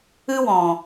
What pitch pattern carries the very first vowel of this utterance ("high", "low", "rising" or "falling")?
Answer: high